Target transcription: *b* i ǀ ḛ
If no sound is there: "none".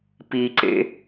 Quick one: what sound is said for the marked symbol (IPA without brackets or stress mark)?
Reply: p